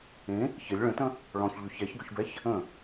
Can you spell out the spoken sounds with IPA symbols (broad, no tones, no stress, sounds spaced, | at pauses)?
ẽ | ç ɪ lʲ ɭ ə̃ t ə̃ | ɭ ɔ̃ ç ʎ ʏ ç ɛ ç ɡ ʏ ç b ɛ ç | ə̃